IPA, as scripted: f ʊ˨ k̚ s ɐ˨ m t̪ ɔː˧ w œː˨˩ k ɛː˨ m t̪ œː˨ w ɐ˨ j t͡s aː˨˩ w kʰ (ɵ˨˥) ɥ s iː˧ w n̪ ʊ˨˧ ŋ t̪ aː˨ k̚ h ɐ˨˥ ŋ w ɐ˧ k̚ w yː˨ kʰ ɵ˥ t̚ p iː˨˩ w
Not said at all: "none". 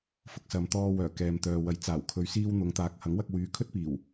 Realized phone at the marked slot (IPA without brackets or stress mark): ɵ˨